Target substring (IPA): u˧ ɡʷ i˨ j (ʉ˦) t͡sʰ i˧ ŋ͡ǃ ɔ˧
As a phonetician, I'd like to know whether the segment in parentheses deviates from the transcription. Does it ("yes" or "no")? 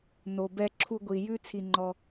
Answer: no